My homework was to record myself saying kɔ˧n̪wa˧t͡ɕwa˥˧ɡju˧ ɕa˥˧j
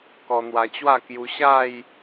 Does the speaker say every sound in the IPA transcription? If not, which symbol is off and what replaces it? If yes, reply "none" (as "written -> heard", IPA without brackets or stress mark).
ɡ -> k